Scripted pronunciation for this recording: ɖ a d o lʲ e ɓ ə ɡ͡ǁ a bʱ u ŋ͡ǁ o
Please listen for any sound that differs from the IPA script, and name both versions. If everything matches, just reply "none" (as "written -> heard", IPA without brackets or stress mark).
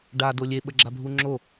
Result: none